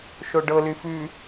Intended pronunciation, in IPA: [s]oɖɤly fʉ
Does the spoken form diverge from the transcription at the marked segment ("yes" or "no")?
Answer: yes